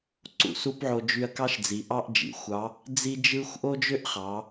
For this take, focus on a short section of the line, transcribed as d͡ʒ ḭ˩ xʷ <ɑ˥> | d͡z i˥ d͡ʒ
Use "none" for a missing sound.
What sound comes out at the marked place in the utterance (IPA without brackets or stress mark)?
ɑ˧˥